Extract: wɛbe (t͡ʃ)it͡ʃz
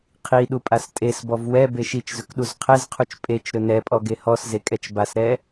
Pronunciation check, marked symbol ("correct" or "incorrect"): incorrect